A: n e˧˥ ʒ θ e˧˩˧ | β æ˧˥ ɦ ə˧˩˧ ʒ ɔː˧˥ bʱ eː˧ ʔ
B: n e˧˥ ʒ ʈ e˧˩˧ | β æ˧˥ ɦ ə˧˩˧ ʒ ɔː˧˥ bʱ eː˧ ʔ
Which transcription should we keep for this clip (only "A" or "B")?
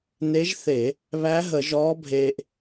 A